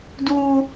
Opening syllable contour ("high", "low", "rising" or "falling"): high